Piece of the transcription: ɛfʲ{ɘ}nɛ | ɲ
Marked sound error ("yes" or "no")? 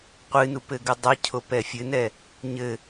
no